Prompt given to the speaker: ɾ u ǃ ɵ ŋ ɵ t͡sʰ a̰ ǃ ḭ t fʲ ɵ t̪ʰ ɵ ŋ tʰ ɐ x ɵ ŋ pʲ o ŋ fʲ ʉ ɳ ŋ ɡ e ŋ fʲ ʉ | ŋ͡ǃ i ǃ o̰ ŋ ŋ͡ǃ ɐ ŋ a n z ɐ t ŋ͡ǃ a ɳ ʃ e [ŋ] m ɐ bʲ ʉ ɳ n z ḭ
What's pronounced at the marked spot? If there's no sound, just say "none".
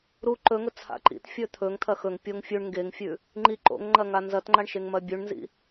ŋ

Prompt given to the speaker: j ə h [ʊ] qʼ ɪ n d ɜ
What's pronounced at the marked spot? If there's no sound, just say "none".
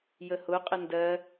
ʊ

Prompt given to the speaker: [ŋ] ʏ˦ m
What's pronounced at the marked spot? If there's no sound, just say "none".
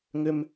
ŋ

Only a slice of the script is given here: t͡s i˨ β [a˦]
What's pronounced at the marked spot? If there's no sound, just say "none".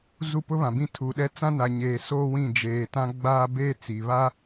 a˦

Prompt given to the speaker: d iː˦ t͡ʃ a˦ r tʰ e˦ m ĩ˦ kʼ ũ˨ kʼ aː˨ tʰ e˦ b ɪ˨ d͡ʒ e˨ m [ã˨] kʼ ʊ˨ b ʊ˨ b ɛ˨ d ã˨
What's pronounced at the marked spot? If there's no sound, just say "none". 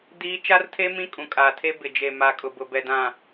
a˨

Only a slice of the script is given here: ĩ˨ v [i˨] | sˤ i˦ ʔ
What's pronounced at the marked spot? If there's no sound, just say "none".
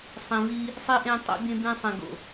i˦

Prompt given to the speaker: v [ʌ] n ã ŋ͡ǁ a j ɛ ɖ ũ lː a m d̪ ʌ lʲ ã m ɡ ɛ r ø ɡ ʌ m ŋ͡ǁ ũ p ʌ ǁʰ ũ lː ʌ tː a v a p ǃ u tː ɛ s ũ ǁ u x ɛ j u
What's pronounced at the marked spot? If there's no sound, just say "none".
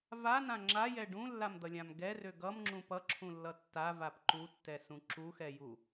a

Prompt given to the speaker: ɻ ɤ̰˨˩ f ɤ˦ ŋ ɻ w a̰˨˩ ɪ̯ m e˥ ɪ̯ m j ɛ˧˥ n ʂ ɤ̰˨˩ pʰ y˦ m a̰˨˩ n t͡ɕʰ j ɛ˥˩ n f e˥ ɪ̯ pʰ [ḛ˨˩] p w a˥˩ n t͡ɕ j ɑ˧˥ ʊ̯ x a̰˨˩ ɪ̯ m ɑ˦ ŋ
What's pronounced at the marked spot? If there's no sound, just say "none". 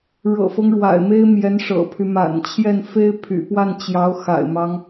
y̰˨˩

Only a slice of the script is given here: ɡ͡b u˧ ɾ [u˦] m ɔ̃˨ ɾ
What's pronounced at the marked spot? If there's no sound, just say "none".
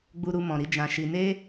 u˧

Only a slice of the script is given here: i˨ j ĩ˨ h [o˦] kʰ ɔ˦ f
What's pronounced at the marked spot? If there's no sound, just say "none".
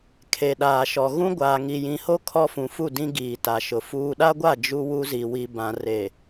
o˦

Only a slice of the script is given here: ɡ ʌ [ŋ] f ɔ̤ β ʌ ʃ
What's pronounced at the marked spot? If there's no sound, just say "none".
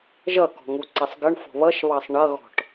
ɳ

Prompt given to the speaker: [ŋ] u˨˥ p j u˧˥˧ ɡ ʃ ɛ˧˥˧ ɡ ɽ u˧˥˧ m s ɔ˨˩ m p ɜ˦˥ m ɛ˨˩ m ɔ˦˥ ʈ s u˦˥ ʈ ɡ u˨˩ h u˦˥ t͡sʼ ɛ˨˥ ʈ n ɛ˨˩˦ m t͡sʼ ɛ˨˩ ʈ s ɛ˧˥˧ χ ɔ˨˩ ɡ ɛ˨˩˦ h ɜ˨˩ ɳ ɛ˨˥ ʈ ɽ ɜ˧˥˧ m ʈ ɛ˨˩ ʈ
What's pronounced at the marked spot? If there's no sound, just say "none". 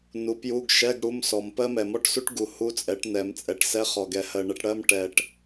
n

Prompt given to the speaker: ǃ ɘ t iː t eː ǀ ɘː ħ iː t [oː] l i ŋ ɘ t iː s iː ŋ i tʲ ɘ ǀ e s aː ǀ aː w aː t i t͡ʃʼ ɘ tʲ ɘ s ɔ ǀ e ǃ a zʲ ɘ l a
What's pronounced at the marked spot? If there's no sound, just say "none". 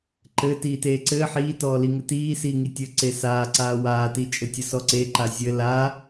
ɔː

